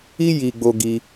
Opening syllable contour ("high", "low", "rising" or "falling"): high